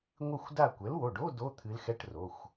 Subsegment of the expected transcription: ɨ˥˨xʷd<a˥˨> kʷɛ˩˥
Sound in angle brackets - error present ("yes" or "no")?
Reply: no